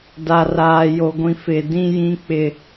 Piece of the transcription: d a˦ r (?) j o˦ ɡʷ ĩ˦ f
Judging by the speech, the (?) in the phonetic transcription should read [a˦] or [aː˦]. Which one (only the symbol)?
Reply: aː˦